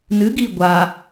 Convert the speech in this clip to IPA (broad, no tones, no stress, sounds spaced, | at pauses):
n ɨ ɡ i ɡʷ a